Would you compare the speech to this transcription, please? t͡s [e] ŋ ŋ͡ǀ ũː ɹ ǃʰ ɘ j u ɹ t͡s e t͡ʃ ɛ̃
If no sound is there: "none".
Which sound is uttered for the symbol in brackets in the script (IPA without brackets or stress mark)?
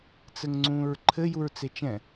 ɘ